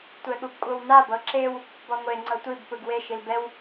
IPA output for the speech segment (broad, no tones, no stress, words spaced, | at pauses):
tʷɛɠubkʷʼɤwnab ɤǁew | bɔŋʷe ŋ͡ǀɤtʷib pɯɡwe ʃilbɛw